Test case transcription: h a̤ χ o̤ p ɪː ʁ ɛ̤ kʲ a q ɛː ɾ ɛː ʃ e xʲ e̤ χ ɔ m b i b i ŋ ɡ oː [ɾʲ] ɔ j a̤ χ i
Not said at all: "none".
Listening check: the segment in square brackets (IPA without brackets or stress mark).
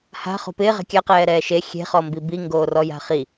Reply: r